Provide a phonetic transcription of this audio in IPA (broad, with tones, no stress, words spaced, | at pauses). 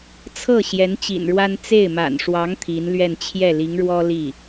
t͡sʰɤ˥˩ ɕjɛ˧˥nt͡ɕḭ˨˩nɻwa˥n t͡se˥˩ɪ̯ma̰˨˩n ʂwɑ˧˥ŋ t̪ʰi˧˥nlɥɛ˥˧n t͡ɕʰjɛ˥˩li˧˥ŋɻwɔ˥ li˥˩